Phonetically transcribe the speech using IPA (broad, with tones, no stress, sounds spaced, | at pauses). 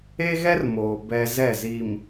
e˦ ɣ ɛ˦ r m oː˨ b ɛ˦ z ɛ˦˨ z i˨ m